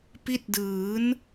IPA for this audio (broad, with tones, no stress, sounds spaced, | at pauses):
p i˦˥ t̚ d ɯː˩˦ n